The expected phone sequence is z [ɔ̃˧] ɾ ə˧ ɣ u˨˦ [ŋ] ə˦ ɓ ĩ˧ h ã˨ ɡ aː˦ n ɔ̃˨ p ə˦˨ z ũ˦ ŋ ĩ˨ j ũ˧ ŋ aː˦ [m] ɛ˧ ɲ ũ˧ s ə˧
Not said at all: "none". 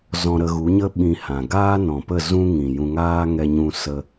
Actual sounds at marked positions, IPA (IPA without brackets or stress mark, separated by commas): ɔ̃˧, ɲ, ŋ